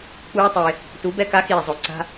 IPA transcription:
k͡p uː˦ tˤ e˧ | t u˨˦ b ɛ˧ k a˨˦ x iː˨ zˤ o˨ ǀ a̤˦

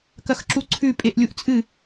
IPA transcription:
k ɐ x ǁ u ǀʰ ʉ pʼ e ʔ lʲ u ʔ t͡sʼ ɨ

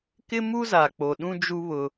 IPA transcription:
k ɪ˦ m u˦ z a˨ k͡p o˨ ɗ ũ˦ d͡ʒ u˦ β ʊ˦

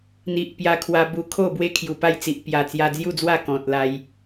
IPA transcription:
n̪ i˨ ʔ p j a˧ kʰ w a˧ b u˧ kʰ o˥˧ b w e˦ kʰ j u˨˩ p a˥˧ j t͡s i˨ ʔ p j a˨˩ t͡s j a˧ d͡z j u˥˧ d͡z w a˥˧ k ɔ̃˨ t̚ l a˧ j

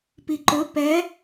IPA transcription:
p i ǃ ɵ p ɛ

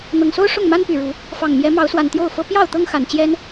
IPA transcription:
n̪ ɤ˨˩ ŋ s o˦ ʊ̯ ʂ ʊ˥˨ ŋ m a˦ n p y˨˩ ɻ u˨˦ | f ɑ˨˩ ŋ m j ɛ˨˦ m ɑ˨˦ ʊ̯ s w a˨˩ n t̪ j o˥˨ ʊ̯ f ɤ˦ p j ɑ˥˨ ʊ̯ t̪ ɤ˦ ŋ x a˨˩ n t͡ɕ j ɛ˦ n

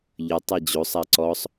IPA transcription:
ʎ ə tˤ ɛ d͡ʑ o sˤ a ǀ ɔ sˤ

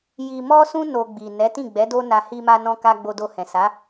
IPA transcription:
j i˧ m ɔ˦ s ũ˦ n o˧ ɡ͡b i˨ n ɛ˨˦ t ĩ˦˨ ɡ͡b ɛ˨˦ d o˦ n a˧ h i˧ m a˧ n ɔ̃˧ k a˧ ɡ͡b o˧ d o˧ h ɛ̃˨ s a˨˦

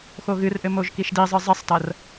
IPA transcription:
x o ɣ ɨ r ʔ ɘ m o ʒ k i ʃ d i zˤ ɨ zˤ e sˤ t ɐ r

